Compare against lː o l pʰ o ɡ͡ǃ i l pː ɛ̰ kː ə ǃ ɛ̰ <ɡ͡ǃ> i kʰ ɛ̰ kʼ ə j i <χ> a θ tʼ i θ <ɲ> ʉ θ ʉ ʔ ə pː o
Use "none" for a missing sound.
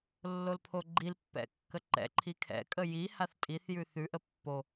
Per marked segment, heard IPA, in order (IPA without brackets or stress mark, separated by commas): ǃʰ, h, j